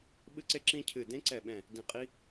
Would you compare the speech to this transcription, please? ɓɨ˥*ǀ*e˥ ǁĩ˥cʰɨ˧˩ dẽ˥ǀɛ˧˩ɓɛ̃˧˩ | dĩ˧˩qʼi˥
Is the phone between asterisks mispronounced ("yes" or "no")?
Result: no